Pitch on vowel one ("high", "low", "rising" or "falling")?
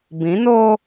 rising